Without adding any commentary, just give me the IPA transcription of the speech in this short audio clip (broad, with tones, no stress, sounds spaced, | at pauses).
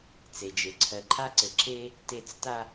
t͡s e˨ d͡ʒ e˨ ǀʰ ɜ˨ ǃʰ a˦ ǀ ɘ˨ ǁ e˦ | t e˨ t͡s t a˨